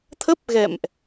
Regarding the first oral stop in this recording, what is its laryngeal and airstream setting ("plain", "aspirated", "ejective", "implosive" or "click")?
aspirated